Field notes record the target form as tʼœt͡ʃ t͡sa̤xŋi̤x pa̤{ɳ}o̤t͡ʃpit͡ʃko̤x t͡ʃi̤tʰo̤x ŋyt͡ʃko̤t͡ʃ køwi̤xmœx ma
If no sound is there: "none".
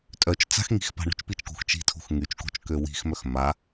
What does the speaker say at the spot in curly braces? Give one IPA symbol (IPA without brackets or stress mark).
ɳ